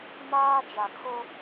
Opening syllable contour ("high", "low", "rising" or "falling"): high